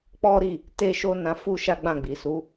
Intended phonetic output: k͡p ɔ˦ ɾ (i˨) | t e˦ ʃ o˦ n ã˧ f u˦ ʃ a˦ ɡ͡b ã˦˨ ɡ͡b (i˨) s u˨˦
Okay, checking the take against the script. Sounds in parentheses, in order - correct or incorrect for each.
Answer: incorrect: i˦˨, correct

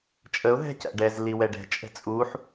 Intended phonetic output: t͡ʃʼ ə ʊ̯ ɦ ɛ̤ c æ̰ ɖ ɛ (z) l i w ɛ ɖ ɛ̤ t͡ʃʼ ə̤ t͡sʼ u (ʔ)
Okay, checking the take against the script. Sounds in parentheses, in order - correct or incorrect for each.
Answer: correct, incorrect: ħ

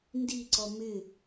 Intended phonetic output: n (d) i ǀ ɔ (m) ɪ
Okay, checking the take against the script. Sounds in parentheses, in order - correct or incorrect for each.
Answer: correct, correct

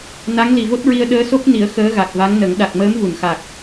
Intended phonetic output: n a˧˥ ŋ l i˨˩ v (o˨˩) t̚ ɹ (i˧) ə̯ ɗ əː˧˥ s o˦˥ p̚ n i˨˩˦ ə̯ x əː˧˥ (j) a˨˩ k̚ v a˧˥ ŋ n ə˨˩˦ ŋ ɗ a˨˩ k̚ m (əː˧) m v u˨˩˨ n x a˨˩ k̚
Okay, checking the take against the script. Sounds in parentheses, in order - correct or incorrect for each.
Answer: incorrect: o˦˥, correct, incorrect: ɣ, incorrect: əː˧˥

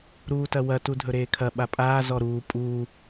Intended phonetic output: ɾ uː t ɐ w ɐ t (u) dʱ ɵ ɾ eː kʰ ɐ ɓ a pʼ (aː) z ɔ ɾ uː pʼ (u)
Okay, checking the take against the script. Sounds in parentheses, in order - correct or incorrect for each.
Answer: correct, correct, incorrect: uː

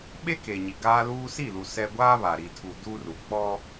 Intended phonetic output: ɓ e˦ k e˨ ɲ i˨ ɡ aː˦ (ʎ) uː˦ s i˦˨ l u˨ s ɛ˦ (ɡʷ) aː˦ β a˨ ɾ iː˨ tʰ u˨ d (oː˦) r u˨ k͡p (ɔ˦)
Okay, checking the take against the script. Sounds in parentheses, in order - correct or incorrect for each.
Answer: incorrect: l, correct, incorrect: uː˦, correct

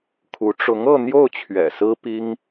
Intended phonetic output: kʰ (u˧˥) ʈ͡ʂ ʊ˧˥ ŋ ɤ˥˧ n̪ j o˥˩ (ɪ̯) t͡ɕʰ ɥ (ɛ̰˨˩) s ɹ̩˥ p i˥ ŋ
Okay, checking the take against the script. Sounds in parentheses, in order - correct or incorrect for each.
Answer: correct, incorrect: ʊ̯, correct

